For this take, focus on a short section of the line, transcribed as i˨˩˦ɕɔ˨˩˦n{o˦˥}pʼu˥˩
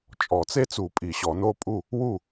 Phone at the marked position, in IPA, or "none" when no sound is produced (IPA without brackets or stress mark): o˦˥